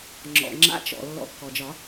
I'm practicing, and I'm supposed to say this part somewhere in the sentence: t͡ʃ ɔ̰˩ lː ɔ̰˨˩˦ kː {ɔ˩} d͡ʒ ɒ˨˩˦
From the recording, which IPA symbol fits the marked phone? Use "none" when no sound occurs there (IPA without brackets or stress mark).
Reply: ɔ˩